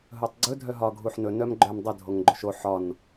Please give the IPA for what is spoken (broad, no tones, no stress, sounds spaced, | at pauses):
ɦ ɵ tˤ ɡ͡ǀ ɵ dʱ œ ɦ ɒ ɡʱ u ħ n ɵ n œ m ɡ͡ǃ œ m dˤ ə dʱ o ŋ ɡ͡ǃ o ʃ o ħ ɒ n